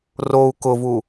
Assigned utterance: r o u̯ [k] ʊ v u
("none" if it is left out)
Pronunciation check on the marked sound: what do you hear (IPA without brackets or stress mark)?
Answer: k